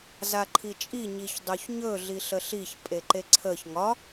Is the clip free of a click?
no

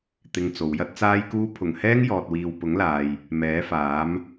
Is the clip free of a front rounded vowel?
yes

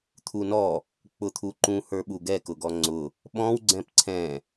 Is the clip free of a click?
no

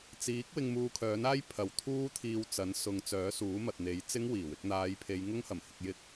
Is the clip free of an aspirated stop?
no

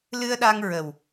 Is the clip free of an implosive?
no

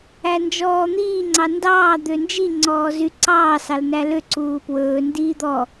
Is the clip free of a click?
no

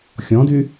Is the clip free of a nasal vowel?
no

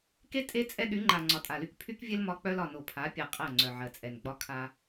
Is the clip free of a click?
no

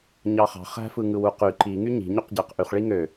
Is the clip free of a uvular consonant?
no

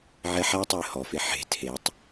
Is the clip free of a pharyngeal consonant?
no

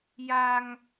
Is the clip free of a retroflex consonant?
yes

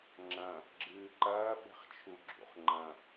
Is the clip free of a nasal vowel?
no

